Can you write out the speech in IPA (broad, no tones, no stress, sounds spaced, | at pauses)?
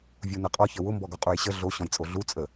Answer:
vʲ u n ə qʼ ɔ ç ə w ʊ m b ɔ ɡ ɔ qʼ u j ɕ ə ɮ o ɕ ɔ̃ j t͡sʼ o ɮ u t͡sʼ ə